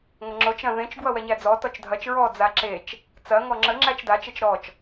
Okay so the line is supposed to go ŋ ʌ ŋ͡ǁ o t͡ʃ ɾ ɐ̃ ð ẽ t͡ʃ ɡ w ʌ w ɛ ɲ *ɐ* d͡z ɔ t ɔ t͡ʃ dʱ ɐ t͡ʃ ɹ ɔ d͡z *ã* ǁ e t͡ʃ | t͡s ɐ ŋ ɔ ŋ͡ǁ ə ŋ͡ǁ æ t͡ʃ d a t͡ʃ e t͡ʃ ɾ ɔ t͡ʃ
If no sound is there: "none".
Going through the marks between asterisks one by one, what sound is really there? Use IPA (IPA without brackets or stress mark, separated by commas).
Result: æ, a